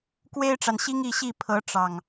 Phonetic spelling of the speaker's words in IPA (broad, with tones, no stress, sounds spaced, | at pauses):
k w e˦ ɪ̯ ʈ͡ʂ a˨ n ɕ i˦ ŋ i˥˨ ɕ i˥˨ pʰ ɤ˨˦ ʈ͡ʂ ɑ˨˩ ŋ